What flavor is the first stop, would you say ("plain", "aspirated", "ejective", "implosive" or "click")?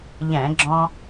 click